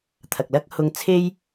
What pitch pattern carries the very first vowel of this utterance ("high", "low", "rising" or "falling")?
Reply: low